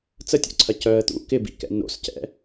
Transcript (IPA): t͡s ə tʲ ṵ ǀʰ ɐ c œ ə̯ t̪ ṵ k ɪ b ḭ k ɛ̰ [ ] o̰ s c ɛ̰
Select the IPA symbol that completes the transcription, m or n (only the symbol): n